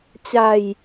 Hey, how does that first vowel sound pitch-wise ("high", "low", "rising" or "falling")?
low